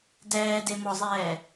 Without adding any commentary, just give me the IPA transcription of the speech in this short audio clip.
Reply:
d ɛː d e m ɔ zˤ ɛː

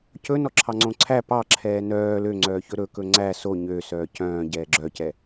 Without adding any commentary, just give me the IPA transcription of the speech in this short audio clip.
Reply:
c ɵ n ɔ ǁʰ ɑ ŋ͡ǀ õ ǀʰ æ p ɑ ǁʰ ɛː n œː l ø ŋ͡ǀ œː ç ɵ ɾ ɵ k ɵ ŋ͡ǀ æ s o ɲ ø s œː c œ̃ː ɟ ɛː ɡ͡ǁ œ c ɛ

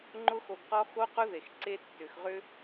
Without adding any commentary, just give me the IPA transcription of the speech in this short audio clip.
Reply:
ŋ͡ǃ ʊ˧ x o˨ ɡ q ɔ˧ x o˧ q ʊ˧ ð e˨ x ǀ e˦ tː ʏ˨ x ʁ ʏ˦

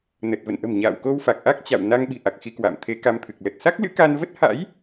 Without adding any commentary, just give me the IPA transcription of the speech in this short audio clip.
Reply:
n ə˨˩ t̚ v ə̰˧˨ n ʔ ə̤˨˩ m ɲ a̰ː˧˨ w k o˧ w f a˨˩ k̚ ʔ a˦˥ k̚ t͡ɕ a̰˧˨ w n a˧ ŋ ɓ i̤˨˩ ʔ a˨˩ k̚ x i˧ k w a̰ː˧˨ m t̪ʰ e˨˦ k a˧ m t̪ʰ ɨ˨˩ k̚ l ə˨˩ t̚ s a˦˥ k̚ l ɨ̰˧˥ k a˧ n v ə˦˥ t̚ h a̰˧˥ j

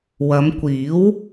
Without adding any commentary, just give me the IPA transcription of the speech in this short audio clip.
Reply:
w ɐ˨˧ m kʷ iː˨˥ w

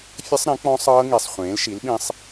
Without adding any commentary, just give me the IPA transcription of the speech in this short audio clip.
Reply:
fʲ ə˦˥ sˤ ɾ ẽ˩˥ k͡p ɔ̃˦˥ sˤ ɤː˦˥ ŋ i˨˩ sˤ χʷ ẽː˩˥ l ʃ i˩˥ l ɓ ĩ˧ sˤ

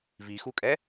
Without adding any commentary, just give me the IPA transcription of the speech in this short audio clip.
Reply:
v i x u kʼ ɛ

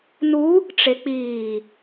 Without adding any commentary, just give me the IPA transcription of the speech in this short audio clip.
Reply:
n u | ʈ͡ʂ e k͡p iː

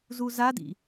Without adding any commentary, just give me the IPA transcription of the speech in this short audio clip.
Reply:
z u z a d ḭ

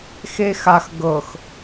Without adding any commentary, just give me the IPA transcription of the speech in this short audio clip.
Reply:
x e x a x ɡ ɤ x

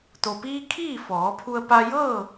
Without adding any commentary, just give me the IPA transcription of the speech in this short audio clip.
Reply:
t̪ o˩ p iː˧ kʰ iː˥˨ f ɔː˩˧ pʰ u˧ ə̯ p a˧ j ɤː˥˨

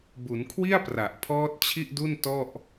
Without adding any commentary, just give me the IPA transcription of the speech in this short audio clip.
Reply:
b u˩˦ n kʰ w i˥˩ a̯ p r a˨˩ ʔ pʰ ɔː˦˥ t̚ t͡ɕʰ i˥˩ ʔ d u˥˩ n t ɔ˥˩ ʔ

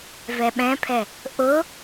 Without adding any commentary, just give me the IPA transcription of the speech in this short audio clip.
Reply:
v ɛ ɓ ɛ̃ pʰ ɛ | ʔ ʊ

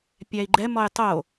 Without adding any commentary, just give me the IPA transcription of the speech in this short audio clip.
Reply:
pʲ æ i̯ ɡ͡ǃ ɛ m ɔ j tˤ o

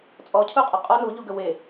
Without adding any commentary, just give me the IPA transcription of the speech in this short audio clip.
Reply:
t͡sʼ ɔ cʰ u qʼ ɐ qʼ ɔ n u ʎ u ɡ ə w e

